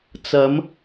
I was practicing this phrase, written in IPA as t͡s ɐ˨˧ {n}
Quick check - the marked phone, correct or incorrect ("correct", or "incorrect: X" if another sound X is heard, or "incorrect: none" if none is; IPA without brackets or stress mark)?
incorrect: m